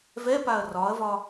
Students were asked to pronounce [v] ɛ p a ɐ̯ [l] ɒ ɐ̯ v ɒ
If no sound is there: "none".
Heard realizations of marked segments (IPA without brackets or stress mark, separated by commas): v, r